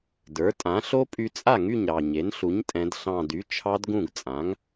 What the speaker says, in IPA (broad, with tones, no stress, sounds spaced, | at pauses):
d ə˞˩˥ tʼ ã˩˥ ɬ o˦˥ pʼ y˧ t͡sʼ a˥˩ ŋ y˥˩ ɲ ɾ ɑ˨˩ ɲ e˩˥ n ɬ u˩˥ ɲ tʼ ɛ̃˩˧ d ɬ ɑ̃˨˩ d y˩˥ t͡ʃʰ ɑ˦˥ d ɡ ũ˥˩ ɡ t͡sʼ ã˩˥ ŋ